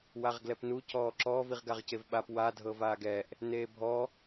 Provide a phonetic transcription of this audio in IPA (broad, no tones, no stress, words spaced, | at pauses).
waʁɡlɛpnu cɔːǁɔ viʁɡaʁcevɓap wa dʱɤvaːɡɛʔ | neːbʱɔ